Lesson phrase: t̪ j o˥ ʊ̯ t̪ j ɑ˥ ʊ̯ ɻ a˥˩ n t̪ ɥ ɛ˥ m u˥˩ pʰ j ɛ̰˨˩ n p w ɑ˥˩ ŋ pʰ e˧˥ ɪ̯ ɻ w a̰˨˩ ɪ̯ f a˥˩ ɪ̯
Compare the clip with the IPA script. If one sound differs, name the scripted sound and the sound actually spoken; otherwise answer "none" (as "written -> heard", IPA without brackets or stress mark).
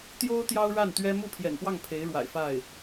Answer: none